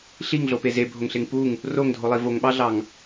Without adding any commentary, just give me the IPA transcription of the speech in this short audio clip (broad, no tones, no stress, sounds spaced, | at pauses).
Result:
ɬ i ŋ ɮ o p e z e bʱ o ŋ ɬ e ŋ p u ŋ | r o ŋ dʱ o lˠ i v o ŋ ɓ ɑ ɮ ɑ ŋ